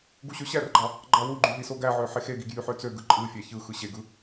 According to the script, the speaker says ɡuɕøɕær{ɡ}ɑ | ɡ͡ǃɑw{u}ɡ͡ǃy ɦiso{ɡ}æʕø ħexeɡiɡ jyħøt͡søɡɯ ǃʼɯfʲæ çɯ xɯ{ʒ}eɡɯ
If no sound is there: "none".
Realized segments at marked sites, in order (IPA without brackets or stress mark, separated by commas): ɡ͡ǃ, u, ɡ, ɕ